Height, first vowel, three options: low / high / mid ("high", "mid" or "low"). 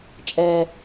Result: mid